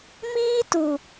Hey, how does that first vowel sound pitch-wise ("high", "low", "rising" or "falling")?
high